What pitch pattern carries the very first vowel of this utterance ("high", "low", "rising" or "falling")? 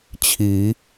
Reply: rising